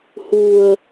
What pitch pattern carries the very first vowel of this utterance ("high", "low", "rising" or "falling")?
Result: low